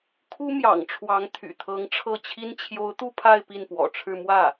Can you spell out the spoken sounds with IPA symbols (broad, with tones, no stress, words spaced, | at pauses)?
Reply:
kʰu˥mjɑ̰˨˩ŋ ʈ͡ʂʰwɑ˧˥ŋt̪ʰy̰˨˩t̪ʰɤ˧˥ŋ ʈ͡ʂʰɤ˥˩t͡ɕʰi˥n t͡ɕʰjo˧˥ʊ̯ t̪u˥˧ pʰa˥˧ɪ̯ pi˥˩npwɔ̰˨˩ʈ͡ʂʰɻ̩˥˧ mwä˥˩